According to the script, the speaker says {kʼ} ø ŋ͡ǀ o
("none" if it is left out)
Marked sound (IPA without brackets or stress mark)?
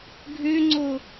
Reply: ɡʱ